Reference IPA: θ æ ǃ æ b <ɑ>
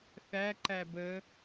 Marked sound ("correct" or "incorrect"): incorrect